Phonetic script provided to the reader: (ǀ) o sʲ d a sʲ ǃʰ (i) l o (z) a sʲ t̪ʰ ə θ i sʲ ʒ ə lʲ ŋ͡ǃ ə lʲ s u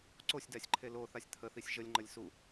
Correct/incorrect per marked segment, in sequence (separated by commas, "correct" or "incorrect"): correct, incorrect, incorrect